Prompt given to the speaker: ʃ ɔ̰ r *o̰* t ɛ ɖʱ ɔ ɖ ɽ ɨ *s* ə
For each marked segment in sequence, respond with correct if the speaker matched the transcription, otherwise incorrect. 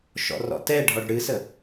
incorrect: ɔ̰, correct

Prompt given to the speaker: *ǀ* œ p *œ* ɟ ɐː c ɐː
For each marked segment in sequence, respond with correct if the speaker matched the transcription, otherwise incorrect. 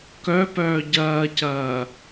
incorrect: k, incorrect: œː

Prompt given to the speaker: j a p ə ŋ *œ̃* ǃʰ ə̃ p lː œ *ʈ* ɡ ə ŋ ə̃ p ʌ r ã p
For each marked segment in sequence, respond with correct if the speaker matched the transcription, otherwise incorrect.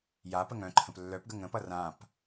correct, incorrect: p

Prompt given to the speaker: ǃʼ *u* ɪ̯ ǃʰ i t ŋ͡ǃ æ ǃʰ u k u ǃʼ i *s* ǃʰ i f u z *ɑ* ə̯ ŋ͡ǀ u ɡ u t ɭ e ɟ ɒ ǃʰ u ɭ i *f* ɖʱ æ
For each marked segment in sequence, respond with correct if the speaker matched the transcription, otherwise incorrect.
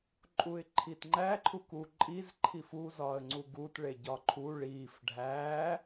correct, incorrect: z, incorrect: ɒ, correct

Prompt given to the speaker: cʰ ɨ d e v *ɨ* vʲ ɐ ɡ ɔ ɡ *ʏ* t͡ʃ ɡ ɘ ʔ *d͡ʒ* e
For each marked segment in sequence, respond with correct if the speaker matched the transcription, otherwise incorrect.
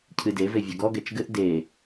incorrect: e, incorrect: ɛ, incorrect: d

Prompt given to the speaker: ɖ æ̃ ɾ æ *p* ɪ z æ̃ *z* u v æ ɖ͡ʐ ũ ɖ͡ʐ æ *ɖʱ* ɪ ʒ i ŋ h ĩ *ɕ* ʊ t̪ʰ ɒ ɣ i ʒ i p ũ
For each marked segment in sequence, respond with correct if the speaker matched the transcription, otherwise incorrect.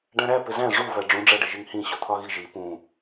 correct, incorrect: ʐ, incorrect: ɖ, correct

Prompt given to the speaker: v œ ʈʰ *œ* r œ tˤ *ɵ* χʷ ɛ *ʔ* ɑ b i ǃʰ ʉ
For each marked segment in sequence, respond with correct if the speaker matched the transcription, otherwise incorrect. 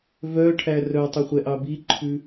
incorrect: æ, correct, correct

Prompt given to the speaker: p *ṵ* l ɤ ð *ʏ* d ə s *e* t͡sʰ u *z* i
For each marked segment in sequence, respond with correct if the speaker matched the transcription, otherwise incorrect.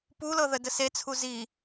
incorrect: u, incorrect: ə, correct, correct

